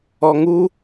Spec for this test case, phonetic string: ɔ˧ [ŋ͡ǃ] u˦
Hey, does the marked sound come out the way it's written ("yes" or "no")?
no